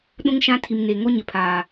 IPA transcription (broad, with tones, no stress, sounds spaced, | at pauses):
ɗ ũ˦ ŋ ʃ ã˦ tʰ i˨ m n e˨ ŋ o˦ ɲ ɪ˨ pʰ aː˨